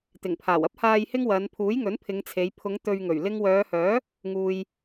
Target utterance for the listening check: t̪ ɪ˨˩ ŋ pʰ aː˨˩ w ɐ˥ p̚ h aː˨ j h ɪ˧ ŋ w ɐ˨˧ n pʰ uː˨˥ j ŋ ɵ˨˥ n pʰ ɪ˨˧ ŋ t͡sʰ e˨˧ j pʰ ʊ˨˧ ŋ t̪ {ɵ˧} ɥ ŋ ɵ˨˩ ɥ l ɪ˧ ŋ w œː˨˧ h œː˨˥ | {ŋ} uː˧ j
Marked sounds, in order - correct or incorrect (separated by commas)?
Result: incorrect, correct